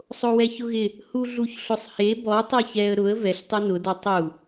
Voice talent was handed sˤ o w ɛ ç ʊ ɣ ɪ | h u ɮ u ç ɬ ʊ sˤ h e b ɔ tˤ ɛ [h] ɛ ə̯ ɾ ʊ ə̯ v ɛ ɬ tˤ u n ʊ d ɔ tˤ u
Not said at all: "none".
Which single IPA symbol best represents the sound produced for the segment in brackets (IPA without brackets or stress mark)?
ç